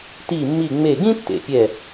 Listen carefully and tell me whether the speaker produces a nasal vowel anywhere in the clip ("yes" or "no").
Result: yes